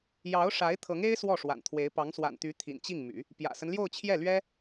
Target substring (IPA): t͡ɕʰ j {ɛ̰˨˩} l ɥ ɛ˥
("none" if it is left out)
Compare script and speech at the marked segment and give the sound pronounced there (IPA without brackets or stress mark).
ɛ˥˩